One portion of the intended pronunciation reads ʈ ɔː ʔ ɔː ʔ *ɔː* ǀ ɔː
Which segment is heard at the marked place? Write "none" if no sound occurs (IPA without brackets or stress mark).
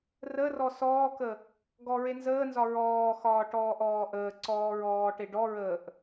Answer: əː